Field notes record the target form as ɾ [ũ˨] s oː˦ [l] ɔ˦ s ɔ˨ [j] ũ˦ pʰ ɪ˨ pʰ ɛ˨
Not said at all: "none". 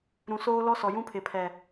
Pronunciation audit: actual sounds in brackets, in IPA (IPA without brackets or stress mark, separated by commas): ũ˨, l, j